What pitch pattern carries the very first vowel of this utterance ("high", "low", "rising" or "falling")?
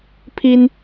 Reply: high